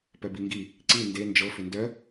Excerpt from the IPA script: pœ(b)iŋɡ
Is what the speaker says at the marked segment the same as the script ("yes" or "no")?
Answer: yes